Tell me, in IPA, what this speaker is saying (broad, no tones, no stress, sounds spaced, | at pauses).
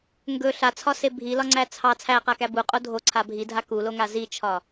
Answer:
ŋ ɡ ɵ ɬ a t͡sʰ ɒ s e bʱ i l ɒ ŋ͡ǀ æ t͡sʰ ɑ t͡sʰ æ q a k æ b u qʼ o dʱ o ǀʰ a bʱ i dʱ a k u l o ŋ a z i t͡ʃʰ ɒ